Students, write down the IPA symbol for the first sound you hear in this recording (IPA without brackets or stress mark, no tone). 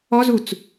ɔ